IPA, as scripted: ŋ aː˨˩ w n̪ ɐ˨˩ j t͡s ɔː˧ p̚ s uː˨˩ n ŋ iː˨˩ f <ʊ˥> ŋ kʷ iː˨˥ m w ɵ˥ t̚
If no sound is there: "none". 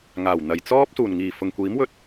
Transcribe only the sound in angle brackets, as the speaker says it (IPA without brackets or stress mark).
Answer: ʊ˨˩